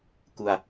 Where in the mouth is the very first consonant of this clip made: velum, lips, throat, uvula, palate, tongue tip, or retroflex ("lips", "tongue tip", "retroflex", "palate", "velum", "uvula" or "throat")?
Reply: velum